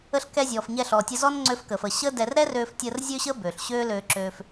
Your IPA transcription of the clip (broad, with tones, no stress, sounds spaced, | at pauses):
ə˧ ɬ k ɛ˧ zʲ ɔː˩ f ɲ ɛ˧ ɬ ɔː˩ tʲ ə˧ z ɔ˥ n ŋ͡ǀ ø˧ f k əː˩ f əː˩ ɕ əː˥ d ɛ˧ r ɾ ɛ˥ r øː˧ f tʲ əː˧ r zʲ ø˥ ɕ əː˥ b øː˩ ɬ ɕ øː˥ l øː˧ ǁ øː˧ f